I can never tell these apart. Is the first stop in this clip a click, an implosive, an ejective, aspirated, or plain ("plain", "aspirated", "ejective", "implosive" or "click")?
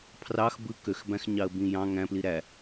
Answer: aspirated